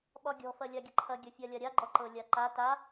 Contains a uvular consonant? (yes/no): no